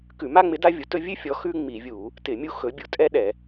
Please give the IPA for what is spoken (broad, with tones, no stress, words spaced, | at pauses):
kʉ˧˩˧ma˥ŋ͡mɪ˨˥ da˥vʲu˨˥tɵ˥ vʲʉ˥fʲɔ˨˥ xʉ˥ŋ͡mi˧˩˧vʲu˧˩˧ | tɪ˧˩˧ mʲu˥xɵ˨˥ bʲu˧˩˧tʼɛ˥ɗɛ˧˩˧